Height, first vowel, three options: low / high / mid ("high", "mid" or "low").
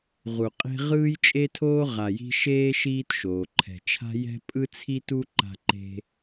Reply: high